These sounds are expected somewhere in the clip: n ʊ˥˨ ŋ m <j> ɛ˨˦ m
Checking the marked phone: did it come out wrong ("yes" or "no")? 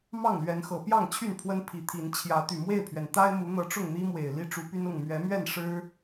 yes